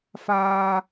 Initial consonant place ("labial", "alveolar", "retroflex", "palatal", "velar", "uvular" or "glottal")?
labial